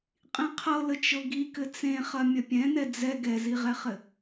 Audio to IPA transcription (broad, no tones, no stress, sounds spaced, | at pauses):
qʼ ĩ qʰ ɤ l ə t͡ʃ ɤ ɡ i k ɘ t͡s ẽ χ ɐ mʲ ɐ pʲ ɛ̃ n ɛ d͡z ɛ ɡ ɛ z i ʁ ɛ χ ɘ